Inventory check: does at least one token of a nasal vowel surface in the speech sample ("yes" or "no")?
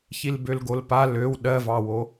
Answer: no